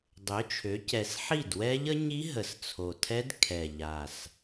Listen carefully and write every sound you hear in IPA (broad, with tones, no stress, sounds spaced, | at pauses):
dˤ ø˩˥ t͡ʃʰ ø˩˥ c ɛ˨˩ s ħ i˥˩ d w ɛ˦˥ ʎ ə˦˥ ɲ i˦˥ ɦ ə˨˩ s t͡sʰ o˨˩ tʰ ɛ˦˥ d kʰ ɛ˨˩ ʎ a˨˩ s